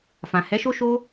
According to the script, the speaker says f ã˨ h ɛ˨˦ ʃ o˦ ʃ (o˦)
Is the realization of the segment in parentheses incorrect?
no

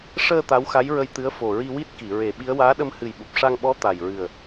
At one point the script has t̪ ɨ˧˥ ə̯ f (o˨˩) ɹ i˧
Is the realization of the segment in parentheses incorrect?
no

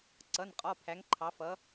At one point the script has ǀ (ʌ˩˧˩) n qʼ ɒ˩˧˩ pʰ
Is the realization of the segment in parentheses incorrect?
no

